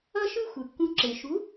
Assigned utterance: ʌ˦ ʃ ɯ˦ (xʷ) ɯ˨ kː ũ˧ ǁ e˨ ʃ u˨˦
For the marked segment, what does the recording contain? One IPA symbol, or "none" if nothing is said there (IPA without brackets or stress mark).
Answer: xʷ